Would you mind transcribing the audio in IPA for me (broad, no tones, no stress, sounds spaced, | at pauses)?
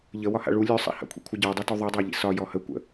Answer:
ʎ ə w ɒ h a̰ ɭ u lʲ ʉ sˤ a̰ h a̰ kʷʰ ḭ kʷʰ ə ɟ ɔ dˤ ʉ t u ðˤ ʉ dˤ a ʎ ḭ s ɒ j ɔ h ə kʷ ə̰